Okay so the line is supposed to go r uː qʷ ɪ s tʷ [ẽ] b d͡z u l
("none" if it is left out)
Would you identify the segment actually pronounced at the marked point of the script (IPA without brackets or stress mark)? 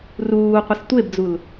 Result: e